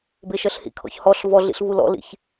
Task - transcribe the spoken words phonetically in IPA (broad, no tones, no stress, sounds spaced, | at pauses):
b e ʃ ɜ ɬ h ḭ kʰ ɔ̰ ç h ɔ ɬ v ɔ ɮ ḭ ɬ v u l ɔ̰ l ḭ ç